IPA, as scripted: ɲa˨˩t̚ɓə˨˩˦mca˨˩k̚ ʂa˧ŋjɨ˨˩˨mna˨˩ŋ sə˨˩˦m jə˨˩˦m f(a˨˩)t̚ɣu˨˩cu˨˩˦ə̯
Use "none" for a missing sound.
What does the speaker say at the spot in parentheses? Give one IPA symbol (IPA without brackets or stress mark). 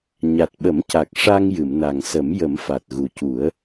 a˨˩